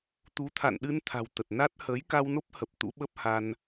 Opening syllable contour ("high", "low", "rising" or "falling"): rising